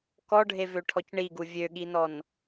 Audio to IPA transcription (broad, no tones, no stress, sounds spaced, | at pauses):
k ɔ ɖʱ e v ø ʈʰ ɔ c ɳ i ɡ u vʲ ø ɠ i n ɔ n